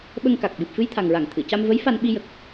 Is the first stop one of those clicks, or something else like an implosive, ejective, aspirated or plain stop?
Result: implosive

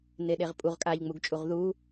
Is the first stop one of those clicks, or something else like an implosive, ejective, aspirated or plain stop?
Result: implosive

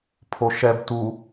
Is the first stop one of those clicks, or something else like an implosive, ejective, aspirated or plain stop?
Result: aspirated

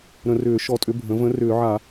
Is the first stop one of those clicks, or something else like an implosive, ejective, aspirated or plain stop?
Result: ejective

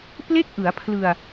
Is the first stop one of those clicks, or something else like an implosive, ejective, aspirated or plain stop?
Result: plain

